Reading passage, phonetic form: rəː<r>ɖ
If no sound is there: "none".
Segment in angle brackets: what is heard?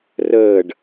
none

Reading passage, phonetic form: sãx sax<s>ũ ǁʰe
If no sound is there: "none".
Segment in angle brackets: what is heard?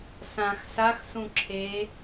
s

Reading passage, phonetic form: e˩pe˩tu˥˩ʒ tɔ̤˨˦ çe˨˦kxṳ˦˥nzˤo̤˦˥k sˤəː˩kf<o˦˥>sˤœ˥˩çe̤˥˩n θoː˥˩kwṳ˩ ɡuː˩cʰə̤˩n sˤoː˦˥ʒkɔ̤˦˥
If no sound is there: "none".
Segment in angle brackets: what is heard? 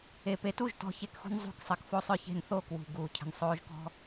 o˦˥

